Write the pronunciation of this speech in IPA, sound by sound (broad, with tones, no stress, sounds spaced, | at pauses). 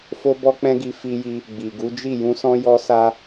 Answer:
f o˦ b ɔ˦ k͡p ɛ̃˦ ɡ i˧ f i˧ j i˧ | ɡ͡b i˨ ɡ u˨˦ d͡ʒ i˦˨ j ũ˧ s ɔ̃˧ j ɔ˧ s a˧